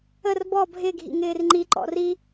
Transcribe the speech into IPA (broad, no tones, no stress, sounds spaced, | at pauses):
ə r b ɔ bʱ ɪ ɡʱ ḭ ŋ ɪː r ŋ͡ǃ i ǃ ɔ̰ r i